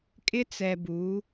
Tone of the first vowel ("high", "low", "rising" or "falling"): high